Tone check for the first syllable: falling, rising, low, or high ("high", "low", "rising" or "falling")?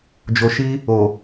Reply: low